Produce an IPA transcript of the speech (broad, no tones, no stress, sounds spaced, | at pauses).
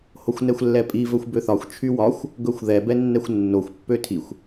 h o xʷ n ɛ xʷ lː ɛ pʼ i v ɵ xʷ b ø θ ɒ xʷ t͡ʃʰ y w ɒ xʷ | ɡ ɵ xʷ ð ɛ b ɛ nː ɛ xʷ nː o xʷ pː ø tʰ i xʷ